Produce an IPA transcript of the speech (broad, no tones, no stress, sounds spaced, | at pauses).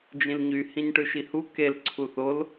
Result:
d͡ʒ ĩ l ɲ y h ĩ ɲ ʈ ɯ ʃ i h u k e l ǀʰ u θ o l